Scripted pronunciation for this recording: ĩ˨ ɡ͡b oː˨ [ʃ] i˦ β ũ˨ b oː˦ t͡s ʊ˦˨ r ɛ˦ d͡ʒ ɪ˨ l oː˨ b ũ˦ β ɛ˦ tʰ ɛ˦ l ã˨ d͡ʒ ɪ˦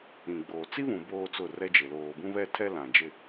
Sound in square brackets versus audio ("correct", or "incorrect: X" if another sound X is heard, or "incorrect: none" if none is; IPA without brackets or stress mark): incorrect: t͡s